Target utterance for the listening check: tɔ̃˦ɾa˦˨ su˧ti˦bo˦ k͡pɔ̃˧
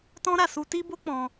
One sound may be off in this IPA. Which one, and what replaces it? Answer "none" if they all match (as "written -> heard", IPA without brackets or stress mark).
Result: none